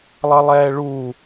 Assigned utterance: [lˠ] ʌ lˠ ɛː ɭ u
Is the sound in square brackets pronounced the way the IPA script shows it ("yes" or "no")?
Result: yes